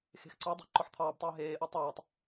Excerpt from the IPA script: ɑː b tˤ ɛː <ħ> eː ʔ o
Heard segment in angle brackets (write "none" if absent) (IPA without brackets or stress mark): ɦ